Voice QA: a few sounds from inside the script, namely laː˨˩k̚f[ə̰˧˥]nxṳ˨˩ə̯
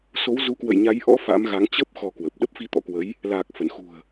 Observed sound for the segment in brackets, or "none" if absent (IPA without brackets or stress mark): ə˧˩